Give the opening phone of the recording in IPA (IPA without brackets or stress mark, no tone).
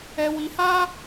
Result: ɛ